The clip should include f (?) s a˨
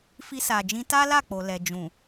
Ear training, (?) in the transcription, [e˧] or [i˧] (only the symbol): i˧